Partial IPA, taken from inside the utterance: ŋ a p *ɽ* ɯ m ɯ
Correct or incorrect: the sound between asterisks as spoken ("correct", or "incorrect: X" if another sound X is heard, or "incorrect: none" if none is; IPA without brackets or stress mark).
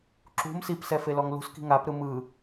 incorrect: ɾ